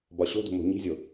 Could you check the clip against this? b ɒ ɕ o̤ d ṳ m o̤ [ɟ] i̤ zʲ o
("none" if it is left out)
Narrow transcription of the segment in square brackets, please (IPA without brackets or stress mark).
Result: ɲ